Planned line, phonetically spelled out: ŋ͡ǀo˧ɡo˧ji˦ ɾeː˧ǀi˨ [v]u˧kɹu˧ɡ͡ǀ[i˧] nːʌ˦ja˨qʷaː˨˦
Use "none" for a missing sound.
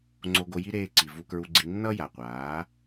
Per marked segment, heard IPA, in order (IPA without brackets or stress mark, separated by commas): v, i˧